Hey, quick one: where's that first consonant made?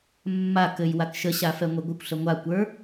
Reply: lips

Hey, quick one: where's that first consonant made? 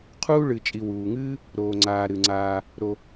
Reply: uvula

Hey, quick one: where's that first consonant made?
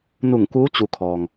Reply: tongue tip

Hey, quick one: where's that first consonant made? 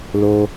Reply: tongue tip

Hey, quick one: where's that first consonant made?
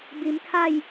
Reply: lips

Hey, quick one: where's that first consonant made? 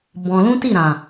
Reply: lips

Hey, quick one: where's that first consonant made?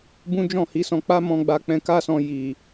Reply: lips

